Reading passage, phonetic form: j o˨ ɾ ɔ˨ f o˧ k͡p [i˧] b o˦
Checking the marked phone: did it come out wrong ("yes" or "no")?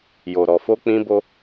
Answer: yes